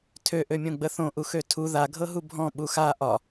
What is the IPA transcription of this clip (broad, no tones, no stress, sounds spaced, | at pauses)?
tʰ ø ʔ ø mʲ õ ɡ͡b ə θ õ ʔ u x ø tʰ u ð a ɡʱ ɤ ɦ u bʱ ɔ̃ ɓ u x a ʔ ɒ